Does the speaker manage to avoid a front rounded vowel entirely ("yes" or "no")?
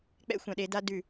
yes